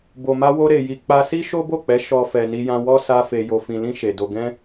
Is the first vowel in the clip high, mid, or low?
mid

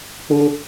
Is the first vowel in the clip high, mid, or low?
mid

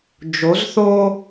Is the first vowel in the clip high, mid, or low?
mid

